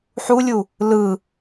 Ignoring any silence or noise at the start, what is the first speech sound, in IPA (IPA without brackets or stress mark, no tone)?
ħ